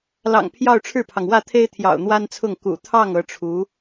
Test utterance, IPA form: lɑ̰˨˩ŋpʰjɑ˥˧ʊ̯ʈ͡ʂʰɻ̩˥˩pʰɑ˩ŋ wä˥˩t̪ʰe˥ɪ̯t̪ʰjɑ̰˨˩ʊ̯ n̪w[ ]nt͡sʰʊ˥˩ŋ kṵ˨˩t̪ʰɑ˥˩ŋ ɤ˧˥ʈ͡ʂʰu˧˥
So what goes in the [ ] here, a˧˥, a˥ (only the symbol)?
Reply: a˥